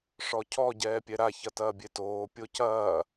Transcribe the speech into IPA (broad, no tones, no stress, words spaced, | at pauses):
ʂɔcʰɔ ɟɛːpʲɛɾa çɐtɐːbʲetoː pʲocɐː